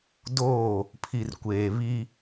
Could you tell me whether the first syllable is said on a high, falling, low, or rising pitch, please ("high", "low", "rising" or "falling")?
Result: falling